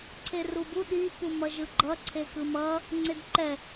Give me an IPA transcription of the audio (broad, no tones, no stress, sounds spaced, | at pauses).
ǀʰ e r u b u ɗ i p u m ʌ ʒ ɯ ɡ͡ǃ ʌ ǀʰ e k ɯ m ʌ | ŋ͡ǀ e d ǃ ɛ